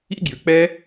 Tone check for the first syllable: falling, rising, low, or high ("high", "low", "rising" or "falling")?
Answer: high